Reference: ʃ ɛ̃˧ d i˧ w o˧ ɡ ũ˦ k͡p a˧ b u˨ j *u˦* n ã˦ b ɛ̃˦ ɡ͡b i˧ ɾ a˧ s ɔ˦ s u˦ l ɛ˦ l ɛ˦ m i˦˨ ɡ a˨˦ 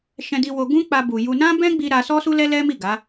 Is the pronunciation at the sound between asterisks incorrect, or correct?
incorrect: u˧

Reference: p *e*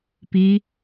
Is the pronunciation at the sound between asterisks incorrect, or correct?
incorrect: i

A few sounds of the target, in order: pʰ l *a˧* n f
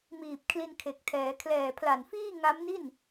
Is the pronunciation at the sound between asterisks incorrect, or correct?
incorrect: a˨˩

